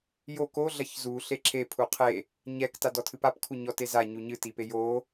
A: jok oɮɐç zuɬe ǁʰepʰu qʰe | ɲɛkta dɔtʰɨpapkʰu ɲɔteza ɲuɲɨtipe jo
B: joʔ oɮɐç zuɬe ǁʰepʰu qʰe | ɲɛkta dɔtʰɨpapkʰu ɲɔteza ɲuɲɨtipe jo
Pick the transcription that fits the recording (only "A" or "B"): A